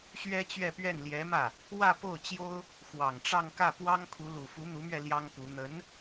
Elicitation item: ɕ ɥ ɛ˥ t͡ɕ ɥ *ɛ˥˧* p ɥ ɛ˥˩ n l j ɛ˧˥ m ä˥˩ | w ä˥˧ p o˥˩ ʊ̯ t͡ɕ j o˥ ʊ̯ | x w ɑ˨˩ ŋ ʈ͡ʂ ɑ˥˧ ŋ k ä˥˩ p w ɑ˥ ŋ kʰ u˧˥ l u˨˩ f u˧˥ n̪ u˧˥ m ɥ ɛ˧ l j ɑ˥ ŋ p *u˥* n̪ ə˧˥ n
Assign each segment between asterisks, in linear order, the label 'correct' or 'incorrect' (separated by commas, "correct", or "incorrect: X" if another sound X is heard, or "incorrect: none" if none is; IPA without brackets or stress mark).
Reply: correct, incorrect: u˧˥